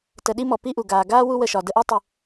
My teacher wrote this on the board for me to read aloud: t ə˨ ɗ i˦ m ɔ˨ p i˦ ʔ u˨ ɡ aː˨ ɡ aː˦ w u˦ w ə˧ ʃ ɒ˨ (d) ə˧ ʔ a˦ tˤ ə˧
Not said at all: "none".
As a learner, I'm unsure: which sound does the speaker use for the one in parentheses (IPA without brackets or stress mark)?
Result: d